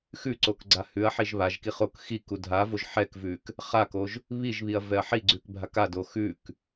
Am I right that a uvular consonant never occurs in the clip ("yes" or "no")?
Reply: no